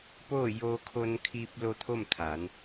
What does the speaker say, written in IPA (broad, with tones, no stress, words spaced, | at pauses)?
poː˥˨ joː˧kʰo˧nkʰiː˧p̚lo˧ t̪ʰo˥˨mt̪ʰa˩˧n